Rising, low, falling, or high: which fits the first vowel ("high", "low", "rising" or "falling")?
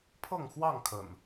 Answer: falling